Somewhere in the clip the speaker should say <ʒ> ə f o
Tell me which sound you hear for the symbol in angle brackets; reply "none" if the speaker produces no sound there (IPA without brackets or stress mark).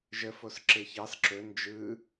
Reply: ʒ